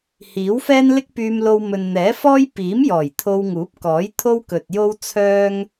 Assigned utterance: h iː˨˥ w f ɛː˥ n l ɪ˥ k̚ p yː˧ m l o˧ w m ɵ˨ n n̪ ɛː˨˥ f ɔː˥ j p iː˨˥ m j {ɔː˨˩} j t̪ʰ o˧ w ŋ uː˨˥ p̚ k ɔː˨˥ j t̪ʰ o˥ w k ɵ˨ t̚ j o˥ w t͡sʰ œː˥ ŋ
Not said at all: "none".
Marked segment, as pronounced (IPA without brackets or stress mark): ɔː˨˩